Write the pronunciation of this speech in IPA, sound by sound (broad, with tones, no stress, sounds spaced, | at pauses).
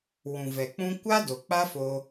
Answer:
w ũ˨ v ɛ˨ k͡p ũ˦ kʷ a˦ d o˨ k͡p a˦ f o˧